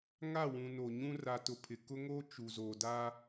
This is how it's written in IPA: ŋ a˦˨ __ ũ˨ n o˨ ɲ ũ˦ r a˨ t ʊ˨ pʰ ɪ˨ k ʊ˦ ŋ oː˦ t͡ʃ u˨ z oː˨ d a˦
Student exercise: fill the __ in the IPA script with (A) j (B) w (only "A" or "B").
B